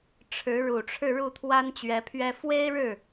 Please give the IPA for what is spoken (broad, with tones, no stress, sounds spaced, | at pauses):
ʈ͡ʂʰ ɻ̩˧˥ ɻ u˨˩ ʈ͡ʂʰ ɻ̩˥˧ ɻ u˥˩ t̪ʰ w a˥ n t͡ɕ ɥ ɛ˧˥ pʰ ɥ ɛ˥ f w e˥ ɪ̯ ɻ ɻ̩˥˩